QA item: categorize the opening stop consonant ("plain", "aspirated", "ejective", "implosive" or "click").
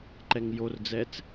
click